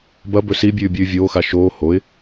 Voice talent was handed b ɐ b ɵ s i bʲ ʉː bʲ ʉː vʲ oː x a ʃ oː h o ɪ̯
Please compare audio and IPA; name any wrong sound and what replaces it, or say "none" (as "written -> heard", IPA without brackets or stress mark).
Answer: none